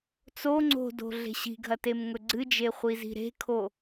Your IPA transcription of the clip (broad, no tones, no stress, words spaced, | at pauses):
t͡so ŋ͡ǀo̤do̤ ɮe̤ɕi̤ɡʱɐ temŋɵɡ͡ǀɨd͡ʒe χʷizi̤ɾe̤kʰo